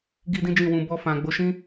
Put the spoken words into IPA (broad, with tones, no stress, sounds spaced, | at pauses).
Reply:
ɡ i˦ d ĩ˦ d͡ʒ ĩ˦˨ w ũ˧ b ɔ˧ f ã˨ ɡ͡b o˨˦ ʃ ĩ˦